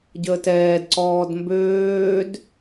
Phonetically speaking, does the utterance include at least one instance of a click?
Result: yes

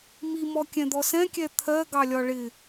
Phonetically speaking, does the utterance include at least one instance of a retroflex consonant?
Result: yes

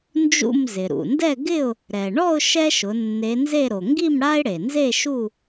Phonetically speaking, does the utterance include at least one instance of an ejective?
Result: no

